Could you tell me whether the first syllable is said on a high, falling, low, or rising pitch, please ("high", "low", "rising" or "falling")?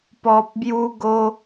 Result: low